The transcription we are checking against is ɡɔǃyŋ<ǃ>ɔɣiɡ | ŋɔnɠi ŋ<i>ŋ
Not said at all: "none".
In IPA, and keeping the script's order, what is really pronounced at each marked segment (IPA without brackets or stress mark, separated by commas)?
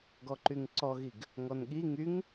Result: ǀ, y